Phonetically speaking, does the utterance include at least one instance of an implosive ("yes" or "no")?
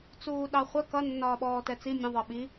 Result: yes